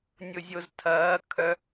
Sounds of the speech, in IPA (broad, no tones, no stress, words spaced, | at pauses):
nʲʊzʲoztʰɐː kʰœ